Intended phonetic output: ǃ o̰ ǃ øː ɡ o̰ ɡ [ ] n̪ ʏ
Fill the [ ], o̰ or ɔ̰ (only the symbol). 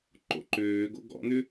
ɔ̰